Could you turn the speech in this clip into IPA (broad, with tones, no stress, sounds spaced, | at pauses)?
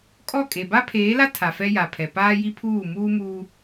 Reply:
kʼ ɔ˦˨ kʼ e˨ b a˦ pʰ eː˨˦ l a˦ tʰ a˨ f ɛ˦ j a˨ pʰ ɛ˨ p aː˦ j i˦ pʰ uː˦˨ m uː˦ m uː˦